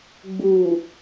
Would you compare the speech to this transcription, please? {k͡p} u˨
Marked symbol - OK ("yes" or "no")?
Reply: no